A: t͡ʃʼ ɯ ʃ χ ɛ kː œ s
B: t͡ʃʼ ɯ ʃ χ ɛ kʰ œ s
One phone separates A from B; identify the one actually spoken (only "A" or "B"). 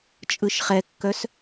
A